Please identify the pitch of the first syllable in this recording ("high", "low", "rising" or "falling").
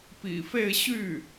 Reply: low